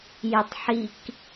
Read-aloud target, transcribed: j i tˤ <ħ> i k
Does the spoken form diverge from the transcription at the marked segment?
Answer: no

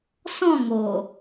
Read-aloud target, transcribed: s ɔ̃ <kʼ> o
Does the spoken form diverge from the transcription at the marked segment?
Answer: yes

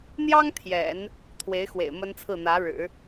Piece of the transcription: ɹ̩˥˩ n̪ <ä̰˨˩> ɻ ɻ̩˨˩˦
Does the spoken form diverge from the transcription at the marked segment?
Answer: yes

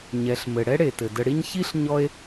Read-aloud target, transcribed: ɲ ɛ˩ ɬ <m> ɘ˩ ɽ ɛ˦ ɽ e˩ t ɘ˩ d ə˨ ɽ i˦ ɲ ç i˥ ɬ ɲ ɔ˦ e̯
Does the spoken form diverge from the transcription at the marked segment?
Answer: no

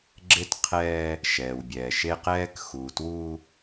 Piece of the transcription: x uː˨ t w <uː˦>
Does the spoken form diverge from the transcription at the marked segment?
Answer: no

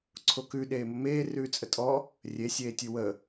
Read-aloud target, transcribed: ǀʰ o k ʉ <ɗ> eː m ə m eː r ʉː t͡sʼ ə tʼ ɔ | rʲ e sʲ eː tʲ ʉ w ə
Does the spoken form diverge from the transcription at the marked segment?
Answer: no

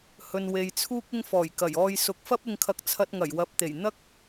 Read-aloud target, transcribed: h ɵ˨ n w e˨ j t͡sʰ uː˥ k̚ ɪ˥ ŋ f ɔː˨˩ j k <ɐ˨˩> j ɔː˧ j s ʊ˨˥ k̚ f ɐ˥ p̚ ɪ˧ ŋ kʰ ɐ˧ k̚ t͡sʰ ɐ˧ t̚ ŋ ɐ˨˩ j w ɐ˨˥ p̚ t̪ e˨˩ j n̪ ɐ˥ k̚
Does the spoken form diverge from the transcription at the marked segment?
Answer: no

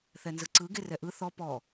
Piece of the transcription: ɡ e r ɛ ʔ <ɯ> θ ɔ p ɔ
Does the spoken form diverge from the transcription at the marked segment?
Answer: no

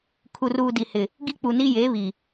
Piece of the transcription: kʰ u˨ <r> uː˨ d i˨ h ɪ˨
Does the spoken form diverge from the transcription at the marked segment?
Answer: no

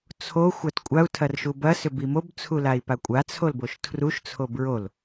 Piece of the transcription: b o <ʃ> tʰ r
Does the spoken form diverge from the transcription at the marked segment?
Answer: no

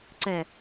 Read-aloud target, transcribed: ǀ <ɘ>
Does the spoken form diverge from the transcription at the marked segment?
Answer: yes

